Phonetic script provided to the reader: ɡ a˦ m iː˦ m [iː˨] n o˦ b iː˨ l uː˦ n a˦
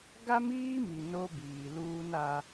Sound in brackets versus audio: incorrect: i˨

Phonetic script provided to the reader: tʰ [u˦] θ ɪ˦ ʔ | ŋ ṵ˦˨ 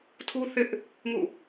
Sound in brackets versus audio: correct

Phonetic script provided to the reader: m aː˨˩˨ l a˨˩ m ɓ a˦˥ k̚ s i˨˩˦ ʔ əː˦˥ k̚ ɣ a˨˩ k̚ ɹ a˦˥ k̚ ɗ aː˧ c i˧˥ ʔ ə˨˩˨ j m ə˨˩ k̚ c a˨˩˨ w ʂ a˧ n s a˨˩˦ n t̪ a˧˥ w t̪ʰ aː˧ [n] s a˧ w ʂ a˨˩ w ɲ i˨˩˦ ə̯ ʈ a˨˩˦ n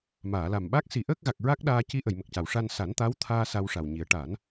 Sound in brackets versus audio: incorrect: none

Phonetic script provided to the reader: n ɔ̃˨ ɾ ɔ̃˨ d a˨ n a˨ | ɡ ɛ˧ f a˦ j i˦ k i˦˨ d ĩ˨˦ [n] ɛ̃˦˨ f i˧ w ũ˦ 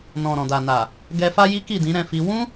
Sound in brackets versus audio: incorrect: ɾ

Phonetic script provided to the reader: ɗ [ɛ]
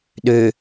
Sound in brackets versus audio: incorrect: ø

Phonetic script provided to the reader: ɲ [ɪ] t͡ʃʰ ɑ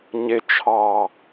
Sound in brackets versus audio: correct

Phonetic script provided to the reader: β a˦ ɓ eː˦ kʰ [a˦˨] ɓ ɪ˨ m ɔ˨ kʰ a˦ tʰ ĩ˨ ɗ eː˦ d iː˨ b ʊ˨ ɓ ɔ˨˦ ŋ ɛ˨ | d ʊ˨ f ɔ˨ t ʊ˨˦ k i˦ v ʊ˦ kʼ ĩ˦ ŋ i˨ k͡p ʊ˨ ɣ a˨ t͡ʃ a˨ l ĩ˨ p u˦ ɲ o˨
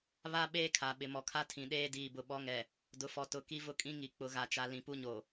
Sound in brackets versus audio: incorrect: a˨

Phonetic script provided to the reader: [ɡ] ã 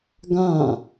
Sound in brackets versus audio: correct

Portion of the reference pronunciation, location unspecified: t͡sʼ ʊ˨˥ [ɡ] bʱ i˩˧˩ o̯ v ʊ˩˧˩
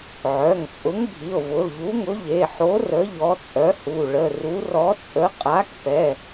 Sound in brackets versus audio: incorrect: ŋ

